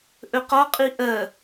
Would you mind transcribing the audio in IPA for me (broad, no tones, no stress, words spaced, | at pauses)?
ʔɵqɔqʼi ʔɜ